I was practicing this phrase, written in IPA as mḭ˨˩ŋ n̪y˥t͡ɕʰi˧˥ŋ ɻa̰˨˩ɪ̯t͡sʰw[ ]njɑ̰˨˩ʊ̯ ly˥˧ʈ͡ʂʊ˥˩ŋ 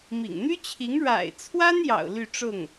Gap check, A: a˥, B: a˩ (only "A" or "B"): A